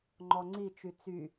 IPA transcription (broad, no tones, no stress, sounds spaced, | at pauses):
ŋ͡ǃ ɔ ŋ͡ǀ i t͡ʃ y t͡s y